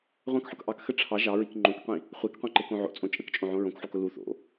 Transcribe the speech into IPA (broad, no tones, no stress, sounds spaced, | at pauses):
ʁʷ ɑ̃ k ħ ʊ k ʔ ɑ k x ə ʈ͡ʂʰ ɑ ʒ ɑ ɹ i k ŋ͡ǃ õ k qʷ ĩ | χʷ e k qʷ ẽ ǃ e k õ ʕ o̰ t͡sʼ õ t͡ʃʼ ə k t͡ʃʼ õ ʕ õ ɹ õ k ħ u k ʊ l u θ o̰